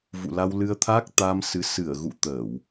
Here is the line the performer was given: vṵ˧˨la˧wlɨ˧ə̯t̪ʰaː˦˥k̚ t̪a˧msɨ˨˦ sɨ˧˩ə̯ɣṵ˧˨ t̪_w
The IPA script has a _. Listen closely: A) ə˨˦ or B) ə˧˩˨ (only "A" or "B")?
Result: B